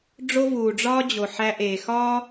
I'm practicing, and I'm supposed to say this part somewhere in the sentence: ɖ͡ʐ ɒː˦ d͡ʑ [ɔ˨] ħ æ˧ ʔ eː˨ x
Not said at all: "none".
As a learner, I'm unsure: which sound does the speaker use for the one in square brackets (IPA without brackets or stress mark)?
o˨